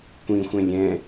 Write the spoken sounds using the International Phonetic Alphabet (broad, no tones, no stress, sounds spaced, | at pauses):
kʷ ĩ xʷ ɛ̃ lʲ ɛ̃